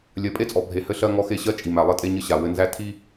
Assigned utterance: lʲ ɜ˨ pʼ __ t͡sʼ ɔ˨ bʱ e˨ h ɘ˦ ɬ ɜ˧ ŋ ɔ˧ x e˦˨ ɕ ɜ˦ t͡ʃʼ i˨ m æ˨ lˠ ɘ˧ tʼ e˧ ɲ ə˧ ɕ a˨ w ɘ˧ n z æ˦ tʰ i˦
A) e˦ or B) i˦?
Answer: A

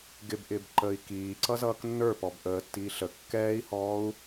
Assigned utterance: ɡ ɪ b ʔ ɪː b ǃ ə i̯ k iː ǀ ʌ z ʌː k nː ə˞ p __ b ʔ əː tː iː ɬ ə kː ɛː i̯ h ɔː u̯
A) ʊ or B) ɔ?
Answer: B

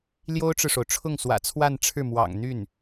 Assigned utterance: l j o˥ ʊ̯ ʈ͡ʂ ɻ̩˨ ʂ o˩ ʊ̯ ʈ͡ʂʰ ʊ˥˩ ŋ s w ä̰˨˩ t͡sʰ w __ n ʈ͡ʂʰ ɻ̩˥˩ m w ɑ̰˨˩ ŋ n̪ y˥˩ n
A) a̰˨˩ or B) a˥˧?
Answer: B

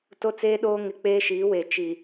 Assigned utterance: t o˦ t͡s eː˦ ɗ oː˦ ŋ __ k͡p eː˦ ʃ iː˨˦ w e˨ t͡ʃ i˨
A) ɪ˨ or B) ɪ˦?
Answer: B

